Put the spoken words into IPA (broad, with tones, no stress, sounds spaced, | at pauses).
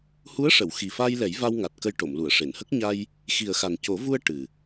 h u˧˥ ə̯ ʂ ə˨˩˨ w x i˨˩ f a˧ j l ɛ˨˩˦ j v a˧ w ŋ a˨˩ t̚ k ə˧ j ʈ o˨˩˨ m l u˨˩˨ ə̯ ʂ e˨˩˨ n h ə˦˥ k̚ ɲ a˧ j | x i˨˩ ə̯ x a˨˩ n c o˨˩˦ v u˧ ə̯ ʈ ɨ˨˩